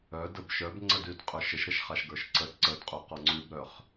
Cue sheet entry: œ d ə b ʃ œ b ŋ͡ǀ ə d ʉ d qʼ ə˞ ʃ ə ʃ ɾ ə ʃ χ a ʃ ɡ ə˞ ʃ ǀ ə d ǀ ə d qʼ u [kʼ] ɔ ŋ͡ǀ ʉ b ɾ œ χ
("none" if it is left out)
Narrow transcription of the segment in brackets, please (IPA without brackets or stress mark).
q